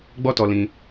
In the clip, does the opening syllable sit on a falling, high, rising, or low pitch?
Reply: high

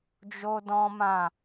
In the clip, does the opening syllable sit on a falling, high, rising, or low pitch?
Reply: high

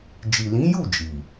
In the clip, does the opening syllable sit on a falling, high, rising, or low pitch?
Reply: low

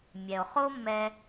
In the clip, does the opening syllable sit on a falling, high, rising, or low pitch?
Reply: low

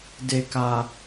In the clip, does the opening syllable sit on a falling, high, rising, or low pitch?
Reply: low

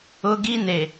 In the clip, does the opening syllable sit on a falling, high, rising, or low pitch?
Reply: high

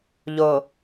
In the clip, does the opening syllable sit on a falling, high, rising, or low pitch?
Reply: low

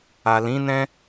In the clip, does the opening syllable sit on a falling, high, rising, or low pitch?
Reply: low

